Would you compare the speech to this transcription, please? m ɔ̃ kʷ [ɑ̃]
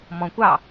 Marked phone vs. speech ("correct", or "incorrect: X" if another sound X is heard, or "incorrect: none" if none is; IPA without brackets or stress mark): incorrect: ɑ